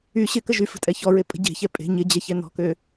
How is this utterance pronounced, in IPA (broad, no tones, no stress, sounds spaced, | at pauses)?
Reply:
y ɕ ɪ k ə ʒ y f ə̤ tʼ ɛ ç ɔ ɹ e pʼ ə̤ ɟ e̤ ç ɛ pʼ e̤ ɲ ɪ d͡ʑ ɛ ç ɛ n ɔ̤ k ø